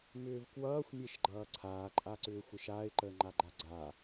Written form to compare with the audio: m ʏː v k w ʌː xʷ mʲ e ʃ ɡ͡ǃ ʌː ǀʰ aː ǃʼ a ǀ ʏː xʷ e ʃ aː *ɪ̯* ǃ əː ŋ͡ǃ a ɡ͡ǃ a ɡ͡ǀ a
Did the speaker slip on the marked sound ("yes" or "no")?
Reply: no